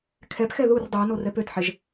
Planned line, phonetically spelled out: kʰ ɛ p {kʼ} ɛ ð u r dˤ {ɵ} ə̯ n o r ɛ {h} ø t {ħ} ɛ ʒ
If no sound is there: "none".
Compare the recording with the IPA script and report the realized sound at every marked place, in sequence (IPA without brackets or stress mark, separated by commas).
x, ɵ, p, ħ